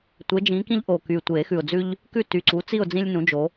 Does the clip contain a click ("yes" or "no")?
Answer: yes